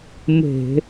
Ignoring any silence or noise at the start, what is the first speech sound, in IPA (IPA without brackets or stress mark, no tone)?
m